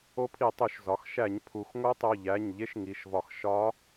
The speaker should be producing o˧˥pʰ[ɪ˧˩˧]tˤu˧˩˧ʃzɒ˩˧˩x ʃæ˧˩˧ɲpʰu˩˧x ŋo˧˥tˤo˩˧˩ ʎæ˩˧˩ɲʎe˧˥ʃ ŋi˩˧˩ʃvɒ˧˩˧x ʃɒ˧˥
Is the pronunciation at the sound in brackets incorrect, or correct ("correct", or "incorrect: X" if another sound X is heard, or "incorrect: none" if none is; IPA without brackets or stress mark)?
incorrect: i˧˩˧